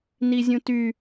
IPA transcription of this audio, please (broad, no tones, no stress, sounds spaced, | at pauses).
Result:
n i zʲ ũ t y